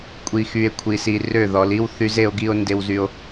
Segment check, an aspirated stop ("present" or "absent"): present